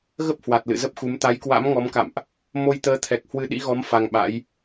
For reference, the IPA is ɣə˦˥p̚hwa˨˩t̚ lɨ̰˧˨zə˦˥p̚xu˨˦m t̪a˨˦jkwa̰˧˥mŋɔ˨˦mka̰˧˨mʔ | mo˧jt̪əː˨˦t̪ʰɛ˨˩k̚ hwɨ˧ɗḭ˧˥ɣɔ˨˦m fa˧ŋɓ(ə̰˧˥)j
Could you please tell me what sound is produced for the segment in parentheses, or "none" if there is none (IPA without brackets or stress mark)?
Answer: a̰˧˥